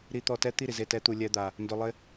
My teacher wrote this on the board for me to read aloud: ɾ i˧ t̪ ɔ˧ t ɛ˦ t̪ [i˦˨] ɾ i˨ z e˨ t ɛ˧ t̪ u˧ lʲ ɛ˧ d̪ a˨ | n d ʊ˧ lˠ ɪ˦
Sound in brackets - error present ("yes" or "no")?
no